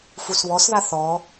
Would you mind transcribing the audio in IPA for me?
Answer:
fusβɔsða θɔ

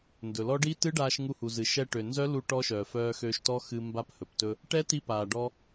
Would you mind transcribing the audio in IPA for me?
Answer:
ndɵ˩lɔ˦˥ ɖi˦˥tɨ˦˥ ɖaː˧ʃŋu˧hu˩zɨ˩ ʃɛ˧ʈø˩nzœ˦˥ lu˦˥ʈɔ˦˥ʃœː˩ fœː˧xøː˧ʃtɔ˦˥ xɨ˧ mba˦˥phɵ˩ptɵ˧ | ʈɛ˦˥ti˧paː˩ ɖɔ˧

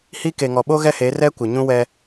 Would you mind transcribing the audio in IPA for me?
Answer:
hi˦ ke˨ŋɔ˨ɓo˦ ɣɛ˦he˨˦rɛ˦ kʷɪ˨ɲũ˦wɛ˦

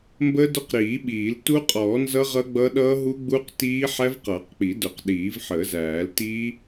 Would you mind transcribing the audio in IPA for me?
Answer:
mbə˦˥dʊ˦˥qɾiː˨˩˦ɓiː˨˩˦l tu˦˥qʼɔː˨˩˦nzʌ˦˥ ʁʌ˦˥ɡ͡bʌ˦˥ ɗʌː˦˥ɦu˦˥ɡ͡bu˦˥qtiː˦˥ ħæ˦˥vqʌː˨˩˦qk͡pi˨˩˦dʊ˨˩˦q ɗiː˨˩˦vħəː˨˩˦zæː˨˩˦l ti˦˥

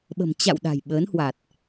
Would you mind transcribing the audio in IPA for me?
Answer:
ɓə̤˨˩m t͡ɕa̰˧˨w ɗa̤˨˩jɓəː˨˦nhwa˨˩t̚

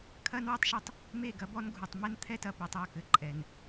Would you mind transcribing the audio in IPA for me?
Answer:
kʰɐ˦nwɛ˦tˤʃɐ˦tˤ | me˦˨ɡɐ˦bɔ˦n ɡʱu˨tˤ mɛ˦nt̪ʰɛ˦tɐ˨pɛ˨tˤ ɔ˦˨kɘ˨ǃʼɛ˨n

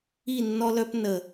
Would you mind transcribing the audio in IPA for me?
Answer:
i˦˨nːɔ˦lœ˦p nə˨

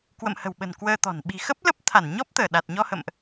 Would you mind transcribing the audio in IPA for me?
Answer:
kwə̰˧˨mhə̤˨˩wɓə̤˨˩n kwəː˧t̪ɔ̤˨˩n ɓi̤˨˩xə˦˥p̚ lə˦˥p̚t̪ʰa˧˩nɲɔ˦˥p̚t̪əː˧˩ ɗa˨˩t̚ ɲɔ˧hə̰˧˨mʔ

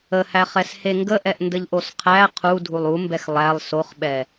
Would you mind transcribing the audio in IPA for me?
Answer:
əhæχɛshe ŋɡəʔɛʔndəʎʔos qʰæ qʰudʱulˠ umbɛx lˠælˠ soχɓɛ

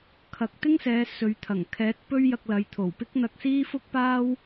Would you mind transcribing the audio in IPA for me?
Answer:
kʰɐ˨k̚t̪ɪ˥ŋsɛː˨˧ sɵ˨˧ɥ t̪ʰɐ˨˩ŋ kʰɛː˨˥t̚pɵ˥ɥ jɐ˧k̚lɐ˨˧jt̪ʰo˨˩wpɪ˥k̚ n̪ɐ˧k̚siː˥fʊ˥k̚paː˥w

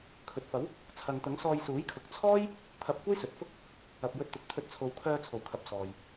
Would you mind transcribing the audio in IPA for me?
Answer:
kʰɵ˨t̚fɐ˨˥w | t͡sʰɐ˨ŋt̪ɐ˨˥ŋ sɔː˧jsuː˨˥jkʰʊ˨˥k̚ t͡sʰɔː˥j | t̪ʰɐ˧p̚kʷɐ˥jsɵ˨t̚fʊ˥k̚ | ɐ˨p̚jɵ˧t̚t̪ʊ˨k̚ t̪ʰɵ˨˥t̚t͡sʰo˨wkʰœː˧ t͡sʰo˨˩wkʰɐ˨p̚ sɔː˨j

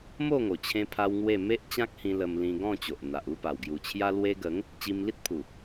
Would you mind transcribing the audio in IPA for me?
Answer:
mo˥˧ŋo˨˩ t͡ɕʰẽ˦pʰa˦wŋwe˥˧ me˦ʔt͡ɕã˦k̚hĩ˧ lə˧mlĩ˧ɡɔ̃˥˧ t͡ɕo˨ʔn̪a˨ʔ u˥˧pa˨˩wɡju˨˩ t͡ɕʰja˧lwe˧ɡə˨˦ŋ | t͡ɕi˧mli˦t̚pʰu˨˩

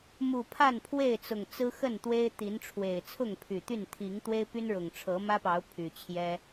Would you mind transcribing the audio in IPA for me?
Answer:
mu˨˩ pʰa˥˨npʰwe˥˨ɪ̯t͡sʊ˨˩ŋt͡sɹ̩˦ xə˥˨nt̪we˦ɪ̯t̪i˨˦nʈ͡ʂʰwe˨˩ɪ̯ t͡sʰʊ˥˨ŋpʰy˨˩t̪y˥˨n t̪ʰi˨˦ŋt̪we˦ɪ̯py˦nɻʊ˨˩ŋ ʈ͡ʂʰɤ˨˦mä˦pɑ˨˦ʊ̯ pʰy˨˩t͡ɕʰjɛ˦

